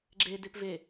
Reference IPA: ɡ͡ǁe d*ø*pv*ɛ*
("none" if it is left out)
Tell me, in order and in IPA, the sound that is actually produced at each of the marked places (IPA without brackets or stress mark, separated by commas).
e, e